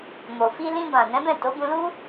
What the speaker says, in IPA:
m o˨ f i˧ l ĩ˧ b ã˨ n ɛ̃˨˦ b ɛ̃˦˨ t o˨˦ b ũ˧ l u˦

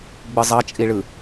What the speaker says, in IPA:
ɡ͡b ɯ zˤ ʌ t͡ʃʼ i ɭ ɯ

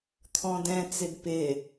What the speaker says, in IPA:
t̪ʰ ɔ̃ d ɛ̃ t͡s ɪ d p ɪ

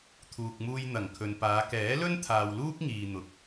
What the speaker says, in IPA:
t̪ʰ uː˨ k̚ m uː˧ j n̪ ɐ˨˩ ŋ kʰ ɵ˨ n p aː˨˧ k ɛː˨˥ l ɵ˥ n t̪ʰ aː˧ w l uː˥ k̚ ŋ iː˨ n̪ ʊ˨ k̚

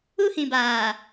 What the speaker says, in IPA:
u˦ h ĩ˨ b aː˨

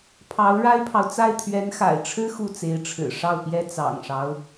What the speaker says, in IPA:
pʰ ɑ˧˥ ʊ̯ ɻ a˥ ɪ̯ pʰ ɑ˨ ʊ̯ t͡s a˥˩ ɪ̯ t̪ʰ ɥ ɛ˧˥ n x a̰˨˩ ɪ̯ ʈ͡ʂʰ ɻ̩˥ x u˥˩ t͡s e˧˥ ɪ̯ ʈ͡ʂʰ ɻ̩˨˩ ʂ ɑ˥˩ ʊ̯ p j ɛ˥ t͡s ɑ̰˨˩ ŋ ʂ ɑ˦ ʊ̯

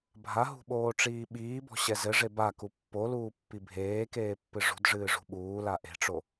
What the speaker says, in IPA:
bʱ a ɦ ṳ ɓ oː ʈ͡ʂ iː ɓ iː b ɔ̤ ɕ ɛ z ɘ ʐ e b a k u pː o l uː pː i bʱ eː k eː pː ɨ ʐ ṳ d ʐ ɨː ʐ ṳ ɓ uː l a ʔ e̤ ʈ͡ʂ o

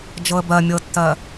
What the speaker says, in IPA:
d͡ʒ ɤ ə̯ b ɜ mʲ ɤ tː ɜ

